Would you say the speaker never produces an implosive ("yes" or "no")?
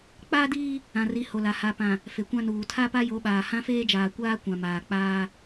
no